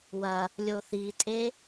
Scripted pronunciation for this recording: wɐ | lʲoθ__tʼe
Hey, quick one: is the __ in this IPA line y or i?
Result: i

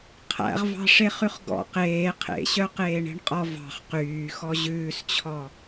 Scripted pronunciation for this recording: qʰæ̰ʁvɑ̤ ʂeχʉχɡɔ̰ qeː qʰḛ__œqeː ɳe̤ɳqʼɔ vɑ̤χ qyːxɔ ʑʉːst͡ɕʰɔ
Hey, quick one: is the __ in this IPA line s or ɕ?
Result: ɕ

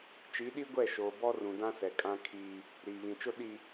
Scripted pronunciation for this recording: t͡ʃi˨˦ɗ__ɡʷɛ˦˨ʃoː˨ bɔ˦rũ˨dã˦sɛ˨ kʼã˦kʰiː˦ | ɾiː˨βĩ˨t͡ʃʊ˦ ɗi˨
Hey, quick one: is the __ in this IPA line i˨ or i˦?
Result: i˦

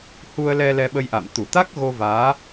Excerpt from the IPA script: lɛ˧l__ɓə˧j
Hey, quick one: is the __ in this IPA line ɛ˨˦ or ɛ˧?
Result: ɛ˧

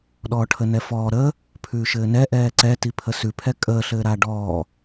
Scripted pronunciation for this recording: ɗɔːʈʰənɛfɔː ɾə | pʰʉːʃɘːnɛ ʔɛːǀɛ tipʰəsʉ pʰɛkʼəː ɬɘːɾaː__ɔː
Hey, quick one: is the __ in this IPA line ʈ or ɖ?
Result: ɖ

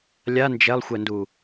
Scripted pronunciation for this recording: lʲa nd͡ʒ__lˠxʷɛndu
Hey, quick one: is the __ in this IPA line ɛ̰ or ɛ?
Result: ɛ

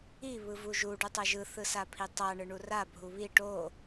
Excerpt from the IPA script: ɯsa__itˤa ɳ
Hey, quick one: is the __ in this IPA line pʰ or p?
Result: pʰ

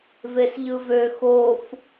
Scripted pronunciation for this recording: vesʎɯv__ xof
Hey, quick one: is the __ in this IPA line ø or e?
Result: ø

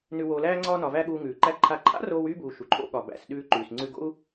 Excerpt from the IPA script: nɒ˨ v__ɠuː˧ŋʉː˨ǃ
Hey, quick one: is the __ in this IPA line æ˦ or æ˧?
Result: æ˦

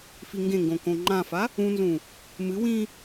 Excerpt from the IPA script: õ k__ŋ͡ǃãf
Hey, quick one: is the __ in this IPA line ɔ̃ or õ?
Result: õ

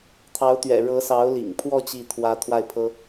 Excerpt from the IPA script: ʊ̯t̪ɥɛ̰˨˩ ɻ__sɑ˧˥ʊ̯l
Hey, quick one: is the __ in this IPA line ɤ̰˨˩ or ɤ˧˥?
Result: ɤ˧˥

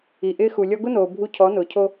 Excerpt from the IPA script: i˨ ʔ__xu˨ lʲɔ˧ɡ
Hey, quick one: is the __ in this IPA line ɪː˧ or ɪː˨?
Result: ɪː˧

